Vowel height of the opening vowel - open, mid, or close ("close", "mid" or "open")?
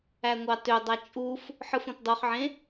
open